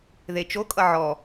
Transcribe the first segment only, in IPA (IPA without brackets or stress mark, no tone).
ð